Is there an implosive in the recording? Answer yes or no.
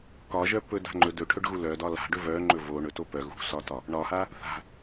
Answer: no